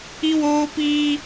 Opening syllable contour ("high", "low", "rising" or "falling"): high